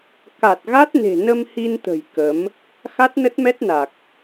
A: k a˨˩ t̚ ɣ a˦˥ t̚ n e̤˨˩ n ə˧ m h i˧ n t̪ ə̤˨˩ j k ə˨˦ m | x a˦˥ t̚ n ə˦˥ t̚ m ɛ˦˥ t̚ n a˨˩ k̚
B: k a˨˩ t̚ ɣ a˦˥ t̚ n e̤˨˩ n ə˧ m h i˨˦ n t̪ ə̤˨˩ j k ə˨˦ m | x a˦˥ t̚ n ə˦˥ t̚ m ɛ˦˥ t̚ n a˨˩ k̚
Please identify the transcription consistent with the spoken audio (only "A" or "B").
A